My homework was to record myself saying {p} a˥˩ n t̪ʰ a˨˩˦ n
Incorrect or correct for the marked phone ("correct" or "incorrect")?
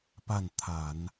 correct